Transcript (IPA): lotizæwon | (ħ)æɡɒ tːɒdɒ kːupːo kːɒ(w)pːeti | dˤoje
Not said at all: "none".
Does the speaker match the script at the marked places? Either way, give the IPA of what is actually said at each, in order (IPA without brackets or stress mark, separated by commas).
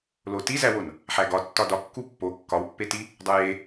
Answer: ħ, w